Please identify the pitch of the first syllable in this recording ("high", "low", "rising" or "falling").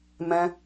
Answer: high